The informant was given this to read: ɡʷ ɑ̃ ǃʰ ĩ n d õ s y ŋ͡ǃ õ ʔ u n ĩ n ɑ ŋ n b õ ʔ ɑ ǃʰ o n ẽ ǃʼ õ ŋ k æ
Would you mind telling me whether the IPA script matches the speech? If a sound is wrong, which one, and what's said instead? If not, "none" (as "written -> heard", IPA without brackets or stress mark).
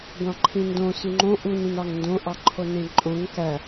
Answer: b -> d